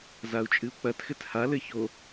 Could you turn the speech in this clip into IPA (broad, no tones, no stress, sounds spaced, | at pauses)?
z a u̯ t͡ʃʼ ɨ u̯ k͡p ɐ t x ɘ t h a l ɘ ç o